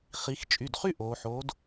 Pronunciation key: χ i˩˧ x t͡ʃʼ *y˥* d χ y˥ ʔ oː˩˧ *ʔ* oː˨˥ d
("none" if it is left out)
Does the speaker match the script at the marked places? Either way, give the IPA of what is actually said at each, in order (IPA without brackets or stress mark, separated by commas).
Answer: y˩˧˩, ħ